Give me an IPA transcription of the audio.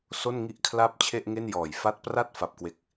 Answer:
s o˥˩ n ŋ i˥˩ ʔ kʰ l a˥˩ p̚ t͡ɕʰ e˥˩ ʔ ŋ e˥˩ n j ɔː˨˩ j f a˦˥ t̚ p r a˥˩ t̚ f a˨˩ p̚ k w e˨˩ k̚

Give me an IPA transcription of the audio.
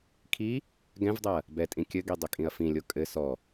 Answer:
kʰ i | ɡ ɛ̃ v dˤ ɛ ɐ̯ | b ɛ tʼ ĩ kʲ ɘ ɡ i dˤ ɘ kʼ ĩ ɐ̯ f ĩ lʲ o kʼ ɘ s ɔ

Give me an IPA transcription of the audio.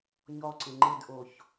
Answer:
ɲ ɔ ǀ ɪ ŋ͡ǃ ɪ d ʔ o ç

